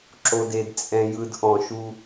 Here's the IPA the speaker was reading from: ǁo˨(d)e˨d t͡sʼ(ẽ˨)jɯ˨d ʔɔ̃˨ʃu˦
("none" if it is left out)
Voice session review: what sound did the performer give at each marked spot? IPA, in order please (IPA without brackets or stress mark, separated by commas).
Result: d, ɛ̃˨